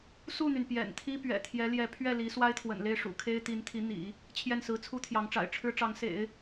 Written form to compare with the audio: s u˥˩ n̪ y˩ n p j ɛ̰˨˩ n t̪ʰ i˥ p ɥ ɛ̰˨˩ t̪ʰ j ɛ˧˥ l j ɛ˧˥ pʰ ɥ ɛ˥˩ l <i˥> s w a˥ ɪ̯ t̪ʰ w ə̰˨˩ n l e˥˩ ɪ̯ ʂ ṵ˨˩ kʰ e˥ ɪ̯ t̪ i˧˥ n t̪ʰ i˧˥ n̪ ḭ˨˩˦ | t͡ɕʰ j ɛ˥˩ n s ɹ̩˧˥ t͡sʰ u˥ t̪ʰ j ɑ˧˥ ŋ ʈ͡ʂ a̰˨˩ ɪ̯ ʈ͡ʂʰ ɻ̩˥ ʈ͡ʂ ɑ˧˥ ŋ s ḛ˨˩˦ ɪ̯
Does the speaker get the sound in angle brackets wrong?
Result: yes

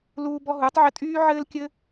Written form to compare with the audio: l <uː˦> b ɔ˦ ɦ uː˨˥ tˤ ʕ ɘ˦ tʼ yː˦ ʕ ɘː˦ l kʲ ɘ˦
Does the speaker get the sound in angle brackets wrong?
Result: no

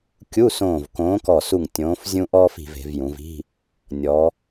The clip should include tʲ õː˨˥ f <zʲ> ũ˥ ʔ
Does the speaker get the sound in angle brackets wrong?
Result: no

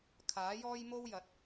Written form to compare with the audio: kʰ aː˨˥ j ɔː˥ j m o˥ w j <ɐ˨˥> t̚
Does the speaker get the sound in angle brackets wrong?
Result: no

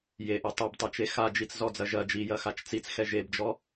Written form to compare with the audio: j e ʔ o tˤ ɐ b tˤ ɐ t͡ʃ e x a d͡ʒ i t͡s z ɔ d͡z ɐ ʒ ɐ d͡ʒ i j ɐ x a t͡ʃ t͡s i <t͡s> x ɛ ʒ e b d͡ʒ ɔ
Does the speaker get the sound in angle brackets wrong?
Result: no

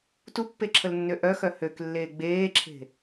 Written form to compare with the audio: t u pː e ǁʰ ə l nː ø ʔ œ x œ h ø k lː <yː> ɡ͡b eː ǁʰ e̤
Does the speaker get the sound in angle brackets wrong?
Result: yes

